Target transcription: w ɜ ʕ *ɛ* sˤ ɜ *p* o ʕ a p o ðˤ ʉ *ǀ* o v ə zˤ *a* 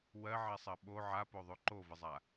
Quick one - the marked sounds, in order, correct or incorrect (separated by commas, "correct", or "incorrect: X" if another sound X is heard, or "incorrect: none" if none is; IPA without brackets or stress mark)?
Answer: correct, incorrect: ɓ, incorrect: ǃ, correct